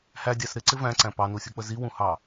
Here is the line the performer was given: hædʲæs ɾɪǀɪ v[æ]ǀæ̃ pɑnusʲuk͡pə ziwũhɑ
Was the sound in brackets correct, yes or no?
no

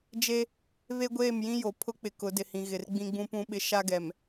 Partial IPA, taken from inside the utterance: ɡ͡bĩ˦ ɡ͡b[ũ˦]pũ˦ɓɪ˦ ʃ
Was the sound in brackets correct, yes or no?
yes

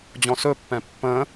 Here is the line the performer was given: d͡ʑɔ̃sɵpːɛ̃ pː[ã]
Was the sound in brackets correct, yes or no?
no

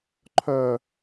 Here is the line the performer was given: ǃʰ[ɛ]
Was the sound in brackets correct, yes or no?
no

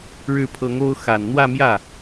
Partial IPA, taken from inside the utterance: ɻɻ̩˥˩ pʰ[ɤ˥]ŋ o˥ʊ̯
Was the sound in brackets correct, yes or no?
no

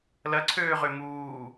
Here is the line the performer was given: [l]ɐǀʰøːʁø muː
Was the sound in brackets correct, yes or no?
yes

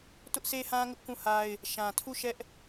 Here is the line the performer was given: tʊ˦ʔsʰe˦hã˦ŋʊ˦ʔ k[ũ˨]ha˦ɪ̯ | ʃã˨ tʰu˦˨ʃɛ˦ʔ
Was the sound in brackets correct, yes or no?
no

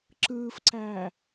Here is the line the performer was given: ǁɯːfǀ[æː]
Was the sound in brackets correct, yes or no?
yes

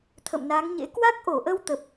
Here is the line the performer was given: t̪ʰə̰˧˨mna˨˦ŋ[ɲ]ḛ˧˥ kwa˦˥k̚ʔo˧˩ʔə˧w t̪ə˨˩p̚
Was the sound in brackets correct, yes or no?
yes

